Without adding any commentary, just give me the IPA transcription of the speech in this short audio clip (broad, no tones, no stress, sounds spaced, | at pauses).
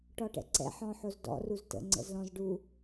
ʈ ɔ ʈ ɛ̰ ǀ ɛ̰ ħ ɔ̃ ħ o z d ɔ̰ r u z t ə̰ ŋ͡ǀ ə̰ z l ɔ̃ z ɖ u